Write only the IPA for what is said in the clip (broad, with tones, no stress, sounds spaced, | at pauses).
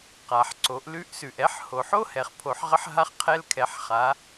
q a˩ ħ ǀ o˩˧ ʔ l ʉ˧˥ ʔ s ʉ˩ ʔ ɛ˧˥ ħ h o˩ ħ o˥ h ɛ˩ χ pʰ o˩˧ ħ ʁ ə˧˥ ħ ɦ a˧ χ qʰ ɛ˧ l kʰ ɛ˩˧ ħ χ a˩˧